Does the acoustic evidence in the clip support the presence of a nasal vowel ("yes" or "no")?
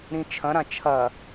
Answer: yes